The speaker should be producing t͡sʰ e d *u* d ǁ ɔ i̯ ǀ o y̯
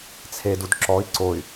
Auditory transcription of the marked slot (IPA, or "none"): u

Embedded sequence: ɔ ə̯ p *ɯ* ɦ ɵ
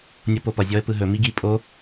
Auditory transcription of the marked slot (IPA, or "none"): ɯ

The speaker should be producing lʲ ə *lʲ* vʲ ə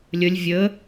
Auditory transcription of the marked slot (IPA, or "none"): lʲ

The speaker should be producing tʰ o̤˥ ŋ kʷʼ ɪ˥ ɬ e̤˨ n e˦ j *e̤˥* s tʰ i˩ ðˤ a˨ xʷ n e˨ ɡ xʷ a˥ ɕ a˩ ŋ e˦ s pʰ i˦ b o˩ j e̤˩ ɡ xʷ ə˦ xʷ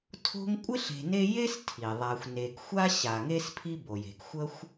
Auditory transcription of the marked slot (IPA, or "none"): e˥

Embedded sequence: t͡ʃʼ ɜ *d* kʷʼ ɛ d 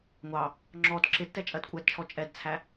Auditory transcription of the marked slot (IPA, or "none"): d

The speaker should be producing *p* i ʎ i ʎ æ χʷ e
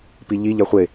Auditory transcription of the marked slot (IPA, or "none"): p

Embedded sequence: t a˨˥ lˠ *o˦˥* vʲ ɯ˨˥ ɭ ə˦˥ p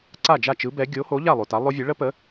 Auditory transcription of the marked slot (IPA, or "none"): o˦˥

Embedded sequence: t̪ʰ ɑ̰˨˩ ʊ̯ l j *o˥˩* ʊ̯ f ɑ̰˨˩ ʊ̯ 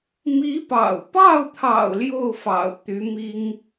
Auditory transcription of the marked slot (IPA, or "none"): o˥˩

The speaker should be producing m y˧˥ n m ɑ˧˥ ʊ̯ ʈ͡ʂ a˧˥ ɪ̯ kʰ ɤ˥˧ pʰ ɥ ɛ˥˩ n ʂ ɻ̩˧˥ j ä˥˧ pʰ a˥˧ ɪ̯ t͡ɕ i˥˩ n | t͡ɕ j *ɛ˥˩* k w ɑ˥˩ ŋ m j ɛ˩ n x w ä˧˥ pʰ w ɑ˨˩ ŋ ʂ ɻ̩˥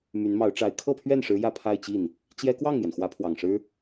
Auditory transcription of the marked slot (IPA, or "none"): ɛ˥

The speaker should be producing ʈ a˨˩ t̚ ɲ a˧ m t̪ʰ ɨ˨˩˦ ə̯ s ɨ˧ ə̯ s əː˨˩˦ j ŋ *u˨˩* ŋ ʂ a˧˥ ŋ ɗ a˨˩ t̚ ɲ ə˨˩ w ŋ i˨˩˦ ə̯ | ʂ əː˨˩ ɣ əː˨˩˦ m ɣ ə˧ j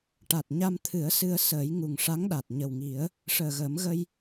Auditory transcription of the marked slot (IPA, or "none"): u˨˩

